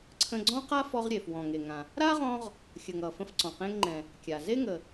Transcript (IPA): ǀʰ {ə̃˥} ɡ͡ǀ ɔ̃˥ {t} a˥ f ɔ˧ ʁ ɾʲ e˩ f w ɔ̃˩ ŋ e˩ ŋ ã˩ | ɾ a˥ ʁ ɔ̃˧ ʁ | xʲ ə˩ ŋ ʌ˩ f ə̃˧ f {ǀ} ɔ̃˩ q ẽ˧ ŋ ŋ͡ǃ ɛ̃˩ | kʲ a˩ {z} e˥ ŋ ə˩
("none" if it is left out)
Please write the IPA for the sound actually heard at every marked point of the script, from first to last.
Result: ə̃˧, q, ǀ, z

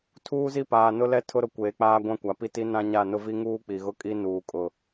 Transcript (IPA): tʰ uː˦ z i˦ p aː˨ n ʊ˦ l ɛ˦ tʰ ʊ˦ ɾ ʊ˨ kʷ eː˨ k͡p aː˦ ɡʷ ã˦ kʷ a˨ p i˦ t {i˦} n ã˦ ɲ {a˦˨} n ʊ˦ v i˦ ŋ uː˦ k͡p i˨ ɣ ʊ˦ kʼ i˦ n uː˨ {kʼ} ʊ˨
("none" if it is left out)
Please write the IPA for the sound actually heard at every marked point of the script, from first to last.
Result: i˦, a˦˨, kʼ

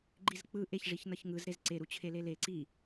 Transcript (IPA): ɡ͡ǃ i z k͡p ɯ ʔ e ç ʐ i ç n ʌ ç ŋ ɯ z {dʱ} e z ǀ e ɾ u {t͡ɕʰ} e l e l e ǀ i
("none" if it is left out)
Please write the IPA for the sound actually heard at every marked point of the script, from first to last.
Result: ɾ, t͡ɕʰ

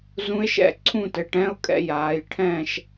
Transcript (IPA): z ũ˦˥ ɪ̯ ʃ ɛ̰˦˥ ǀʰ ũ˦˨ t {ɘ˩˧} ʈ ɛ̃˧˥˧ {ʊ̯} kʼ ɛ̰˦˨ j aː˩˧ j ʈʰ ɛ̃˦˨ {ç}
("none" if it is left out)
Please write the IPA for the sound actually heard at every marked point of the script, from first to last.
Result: ɘ˩˧, ʊ̯, ʃ

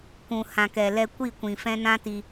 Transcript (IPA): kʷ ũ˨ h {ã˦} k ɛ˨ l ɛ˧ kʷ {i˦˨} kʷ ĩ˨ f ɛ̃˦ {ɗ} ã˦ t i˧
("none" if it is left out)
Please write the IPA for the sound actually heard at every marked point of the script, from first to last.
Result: ã˨, i˦˨, n

